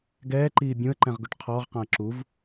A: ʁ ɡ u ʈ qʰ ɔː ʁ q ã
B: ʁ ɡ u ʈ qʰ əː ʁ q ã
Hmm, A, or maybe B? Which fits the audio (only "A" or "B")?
A